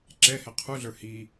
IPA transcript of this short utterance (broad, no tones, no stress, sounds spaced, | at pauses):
ǁ ɛ h ɛ qʰ u ɮ ə˞ h i